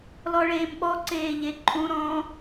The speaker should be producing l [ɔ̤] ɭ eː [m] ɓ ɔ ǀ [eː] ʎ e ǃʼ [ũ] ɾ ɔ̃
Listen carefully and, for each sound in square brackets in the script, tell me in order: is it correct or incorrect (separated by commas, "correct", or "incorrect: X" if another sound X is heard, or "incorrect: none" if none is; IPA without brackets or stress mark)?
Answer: incorrect: ɔ, correct, correct, correct